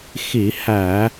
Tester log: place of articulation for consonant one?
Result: velar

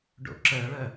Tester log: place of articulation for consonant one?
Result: retroflex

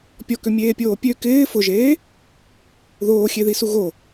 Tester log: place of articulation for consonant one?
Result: labial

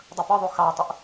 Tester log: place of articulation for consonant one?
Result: alveolar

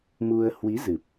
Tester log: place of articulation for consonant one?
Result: labial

